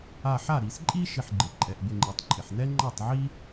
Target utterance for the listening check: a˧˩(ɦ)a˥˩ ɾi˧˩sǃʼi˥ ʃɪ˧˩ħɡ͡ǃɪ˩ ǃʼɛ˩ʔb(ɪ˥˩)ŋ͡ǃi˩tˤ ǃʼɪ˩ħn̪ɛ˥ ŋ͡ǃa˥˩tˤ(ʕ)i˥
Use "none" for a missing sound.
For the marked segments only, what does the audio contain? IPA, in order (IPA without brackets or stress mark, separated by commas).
ħ, ɪ˧˩, ʕ